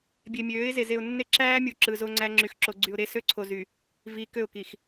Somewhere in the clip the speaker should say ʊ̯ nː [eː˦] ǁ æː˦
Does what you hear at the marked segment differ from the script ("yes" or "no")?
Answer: yes